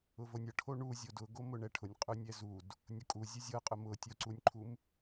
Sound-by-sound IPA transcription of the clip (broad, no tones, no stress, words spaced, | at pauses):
ʊvonʲɤ ʈʰoɳuzʲod ʊɡo mʊɳɛʈʰʊnʲ qʼʊnʲɛzud | nʲʊkʼu zʲʊzʲɤqʼʊ mʊtʲoǀunʲǃʰum